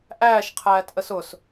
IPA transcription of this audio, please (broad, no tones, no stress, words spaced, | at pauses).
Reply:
ʔæːʃqʰæːtʔəs ʊs